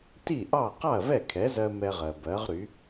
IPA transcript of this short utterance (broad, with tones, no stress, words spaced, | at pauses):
ti˥˩ʔɑ˥˩ qɑ˥˩ɐ̯vɛ˥˩kʰɛ˩˥zɜ˧ mɛ˧ʁɜ˩bɜ˩˥ʁɾy˩˥